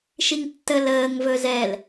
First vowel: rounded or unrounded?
unrounded